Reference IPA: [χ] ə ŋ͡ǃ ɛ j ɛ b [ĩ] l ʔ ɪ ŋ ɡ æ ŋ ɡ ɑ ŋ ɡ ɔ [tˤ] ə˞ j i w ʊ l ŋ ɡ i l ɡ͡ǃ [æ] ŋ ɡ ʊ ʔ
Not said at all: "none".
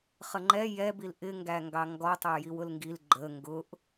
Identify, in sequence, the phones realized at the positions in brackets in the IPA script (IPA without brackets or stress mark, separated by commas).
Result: χ, i, tˤ, ə